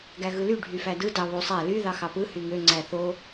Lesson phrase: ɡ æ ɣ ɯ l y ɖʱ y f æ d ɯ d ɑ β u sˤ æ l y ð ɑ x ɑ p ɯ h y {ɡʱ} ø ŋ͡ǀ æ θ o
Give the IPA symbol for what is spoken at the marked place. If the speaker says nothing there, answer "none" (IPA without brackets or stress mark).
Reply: ŋ